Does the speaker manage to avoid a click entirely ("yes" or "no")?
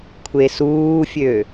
yes